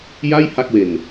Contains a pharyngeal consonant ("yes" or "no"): no